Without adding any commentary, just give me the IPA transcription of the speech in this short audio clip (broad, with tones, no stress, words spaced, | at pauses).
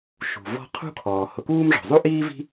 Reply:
ʃṳ˩vɔ̤˦ qʰṳ˥kʰɔː˩ hʊ˨kuː˦mʐɔ̤˩zˤu˥ ʔiː˥vi̤˦